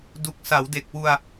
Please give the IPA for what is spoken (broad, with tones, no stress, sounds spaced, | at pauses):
d u˨˩ k̚ s a˩˦ w d e˨˩ k̚ w u˧ a̯